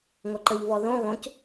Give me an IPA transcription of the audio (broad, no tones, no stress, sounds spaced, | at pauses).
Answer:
ŋʷ ɐ ǃ ə ʎ v ɔ ð õ ɣ õ c